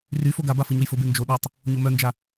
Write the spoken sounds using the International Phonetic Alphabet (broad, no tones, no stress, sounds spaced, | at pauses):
r y f o ɡ a b a f ɯ ɲ o j f ʊ b e n d͡ʒ o ɗ œ tˤ | ɲ o m œ n d͡ʒ a